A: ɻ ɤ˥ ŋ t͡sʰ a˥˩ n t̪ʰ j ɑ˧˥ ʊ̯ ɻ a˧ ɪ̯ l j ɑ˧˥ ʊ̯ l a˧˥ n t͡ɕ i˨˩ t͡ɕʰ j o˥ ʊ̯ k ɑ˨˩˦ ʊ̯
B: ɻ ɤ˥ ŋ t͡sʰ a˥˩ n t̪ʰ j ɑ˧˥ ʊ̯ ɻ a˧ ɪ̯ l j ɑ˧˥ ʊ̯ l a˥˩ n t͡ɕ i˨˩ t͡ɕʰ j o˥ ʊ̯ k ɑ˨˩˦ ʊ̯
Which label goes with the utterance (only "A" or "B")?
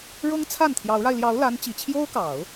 A